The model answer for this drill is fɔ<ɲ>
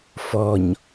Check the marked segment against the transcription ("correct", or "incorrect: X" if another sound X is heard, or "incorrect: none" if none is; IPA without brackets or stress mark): correct